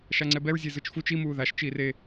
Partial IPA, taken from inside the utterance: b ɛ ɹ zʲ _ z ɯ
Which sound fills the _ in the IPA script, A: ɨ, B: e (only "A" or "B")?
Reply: B